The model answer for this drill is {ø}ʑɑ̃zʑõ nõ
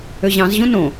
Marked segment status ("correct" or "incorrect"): correct